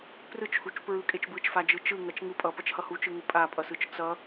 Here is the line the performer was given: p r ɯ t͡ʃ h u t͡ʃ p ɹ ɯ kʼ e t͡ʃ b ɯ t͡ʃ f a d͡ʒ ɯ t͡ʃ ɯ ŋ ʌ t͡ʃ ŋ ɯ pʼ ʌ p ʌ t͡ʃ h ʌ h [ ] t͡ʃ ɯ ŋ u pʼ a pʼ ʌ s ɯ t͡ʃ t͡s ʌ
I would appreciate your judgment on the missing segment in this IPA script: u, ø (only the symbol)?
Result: u